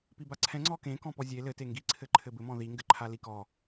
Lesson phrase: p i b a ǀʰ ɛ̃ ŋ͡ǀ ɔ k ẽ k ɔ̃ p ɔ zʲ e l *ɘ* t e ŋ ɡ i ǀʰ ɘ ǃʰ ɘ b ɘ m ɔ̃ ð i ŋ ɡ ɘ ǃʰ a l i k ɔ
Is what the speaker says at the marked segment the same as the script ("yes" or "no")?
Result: yes